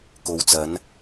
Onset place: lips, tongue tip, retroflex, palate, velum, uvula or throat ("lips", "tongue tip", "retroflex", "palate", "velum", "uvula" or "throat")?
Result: velum